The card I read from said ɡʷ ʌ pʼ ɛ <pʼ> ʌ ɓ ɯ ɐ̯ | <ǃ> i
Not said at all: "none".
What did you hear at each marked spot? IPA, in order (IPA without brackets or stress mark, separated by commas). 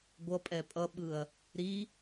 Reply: pʼ, ɾ